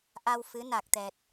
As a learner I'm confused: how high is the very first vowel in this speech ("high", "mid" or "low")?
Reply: low